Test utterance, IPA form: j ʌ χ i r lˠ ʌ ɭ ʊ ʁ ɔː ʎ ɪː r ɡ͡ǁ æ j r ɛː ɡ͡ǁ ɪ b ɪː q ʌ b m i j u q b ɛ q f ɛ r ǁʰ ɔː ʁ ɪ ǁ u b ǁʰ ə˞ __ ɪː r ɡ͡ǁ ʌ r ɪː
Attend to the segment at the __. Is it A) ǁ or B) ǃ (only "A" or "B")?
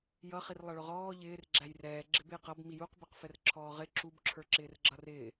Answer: A